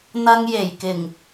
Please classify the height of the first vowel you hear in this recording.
low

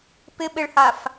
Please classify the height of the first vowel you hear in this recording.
high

